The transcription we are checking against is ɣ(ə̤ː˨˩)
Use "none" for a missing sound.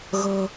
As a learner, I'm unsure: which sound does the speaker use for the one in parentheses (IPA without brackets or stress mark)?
ə̤ː˨˩